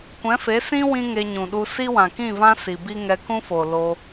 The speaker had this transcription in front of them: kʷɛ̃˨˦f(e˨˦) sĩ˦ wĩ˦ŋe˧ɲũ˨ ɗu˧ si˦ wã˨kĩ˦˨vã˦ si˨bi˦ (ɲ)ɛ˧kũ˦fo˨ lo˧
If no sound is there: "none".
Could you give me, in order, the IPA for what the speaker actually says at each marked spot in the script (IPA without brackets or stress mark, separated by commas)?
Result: e˨˦, ŋ